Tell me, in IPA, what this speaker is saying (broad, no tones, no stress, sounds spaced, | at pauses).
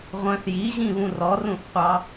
ʁʷ œ̃ θ j i ʑ ĩ β ũ r ɔ r ũ θ qʷ ɑ